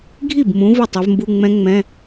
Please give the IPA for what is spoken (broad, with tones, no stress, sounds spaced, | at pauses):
ɡʱ i˥˩ b m ũ˨˦ v ʊ˥˩ tˤ ɜ˨˦ v m b u˧˥˧ ŋ͡m ɛ̃˦˥ ŋ͡m ɛ̃˧˥˧